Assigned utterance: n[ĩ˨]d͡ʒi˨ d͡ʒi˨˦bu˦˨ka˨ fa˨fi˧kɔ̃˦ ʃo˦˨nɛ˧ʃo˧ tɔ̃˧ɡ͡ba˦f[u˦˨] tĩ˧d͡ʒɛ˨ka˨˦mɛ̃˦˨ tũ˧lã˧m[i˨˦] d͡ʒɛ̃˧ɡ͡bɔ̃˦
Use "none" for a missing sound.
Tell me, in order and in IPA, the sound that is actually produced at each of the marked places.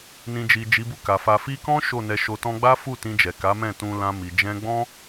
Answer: ĩ˨, u˦˨, i˨

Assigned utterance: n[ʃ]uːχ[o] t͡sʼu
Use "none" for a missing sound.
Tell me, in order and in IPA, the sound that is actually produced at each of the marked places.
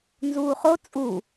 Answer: z, o

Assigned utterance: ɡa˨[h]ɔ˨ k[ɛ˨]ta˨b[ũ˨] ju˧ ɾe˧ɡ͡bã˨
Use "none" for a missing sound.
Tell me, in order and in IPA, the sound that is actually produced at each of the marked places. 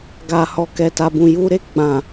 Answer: h, ɛ˨, ũ˨

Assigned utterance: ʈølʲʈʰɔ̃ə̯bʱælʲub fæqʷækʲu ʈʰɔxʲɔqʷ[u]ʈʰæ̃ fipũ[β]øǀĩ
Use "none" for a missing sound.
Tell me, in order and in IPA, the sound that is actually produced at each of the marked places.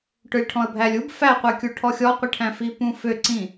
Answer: ɯ, f

